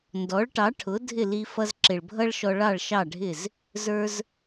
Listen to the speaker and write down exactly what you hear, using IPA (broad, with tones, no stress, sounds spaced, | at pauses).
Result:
n d ɔ˩˥ ɭ ʈ ɑ˩˥ ʈʰ ʊ˩˥ dʱ ɪ˥˩ l i˧ f ʌ˧ z ǁ ɪ˩ ɭ bʱ ʌ˥ ɭ ʃ ɔ˧ ɭ ɑ˥˩ ɭ ʃ ɑ˥˩ ɖʱ ɪ˥˩ z | z ə˞˧ z